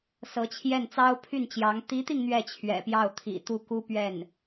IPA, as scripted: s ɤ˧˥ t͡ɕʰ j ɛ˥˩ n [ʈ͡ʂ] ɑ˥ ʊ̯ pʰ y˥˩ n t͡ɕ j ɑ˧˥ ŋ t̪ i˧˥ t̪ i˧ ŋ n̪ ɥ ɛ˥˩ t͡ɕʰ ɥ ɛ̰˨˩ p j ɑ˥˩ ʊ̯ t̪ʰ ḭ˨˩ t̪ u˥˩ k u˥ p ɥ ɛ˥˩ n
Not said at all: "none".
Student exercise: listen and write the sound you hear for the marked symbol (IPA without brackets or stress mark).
t͡s